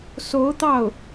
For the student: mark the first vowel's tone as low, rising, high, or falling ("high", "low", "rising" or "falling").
rising